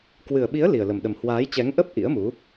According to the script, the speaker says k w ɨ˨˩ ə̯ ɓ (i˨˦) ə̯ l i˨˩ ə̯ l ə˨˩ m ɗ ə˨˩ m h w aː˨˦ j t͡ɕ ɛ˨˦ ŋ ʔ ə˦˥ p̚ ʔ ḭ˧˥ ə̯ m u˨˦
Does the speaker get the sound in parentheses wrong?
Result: no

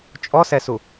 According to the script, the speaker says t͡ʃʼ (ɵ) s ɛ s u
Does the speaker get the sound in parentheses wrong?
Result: yes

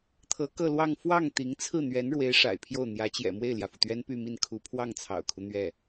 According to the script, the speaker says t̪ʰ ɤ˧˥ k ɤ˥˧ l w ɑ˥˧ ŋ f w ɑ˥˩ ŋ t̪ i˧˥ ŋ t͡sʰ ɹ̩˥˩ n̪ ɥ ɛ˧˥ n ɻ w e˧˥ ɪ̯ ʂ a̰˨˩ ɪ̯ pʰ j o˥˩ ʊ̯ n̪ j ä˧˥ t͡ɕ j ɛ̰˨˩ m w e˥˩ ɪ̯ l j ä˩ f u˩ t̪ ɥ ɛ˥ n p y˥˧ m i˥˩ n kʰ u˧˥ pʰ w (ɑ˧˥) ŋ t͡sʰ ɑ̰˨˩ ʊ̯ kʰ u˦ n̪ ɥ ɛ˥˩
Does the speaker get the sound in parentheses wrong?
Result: yes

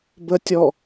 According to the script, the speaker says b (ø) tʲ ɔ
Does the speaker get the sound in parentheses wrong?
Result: yes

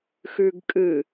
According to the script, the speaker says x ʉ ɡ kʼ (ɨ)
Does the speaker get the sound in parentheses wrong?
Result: no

